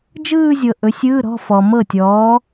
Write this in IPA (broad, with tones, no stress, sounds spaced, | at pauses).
d͡ʒ ɯː˥˧ zʲ ɤ˨ ʔ ɵ˨˥ sʲ ɯː˧˥˧ ɾ ɔ̤˧˥˧ f ɔ˨ m ɤ˥˩ tʲ ɔː˨˥